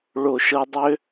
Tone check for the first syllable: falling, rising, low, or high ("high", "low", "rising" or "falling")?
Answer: low